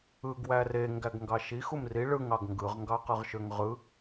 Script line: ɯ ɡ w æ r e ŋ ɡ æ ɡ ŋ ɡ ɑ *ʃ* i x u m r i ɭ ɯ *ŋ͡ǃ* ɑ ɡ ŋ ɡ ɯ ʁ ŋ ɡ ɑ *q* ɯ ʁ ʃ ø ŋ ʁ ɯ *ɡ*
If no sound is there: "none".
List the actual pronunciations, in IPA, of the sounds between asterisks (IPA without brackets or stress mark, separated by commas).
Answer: ʃ, ŋ, q, none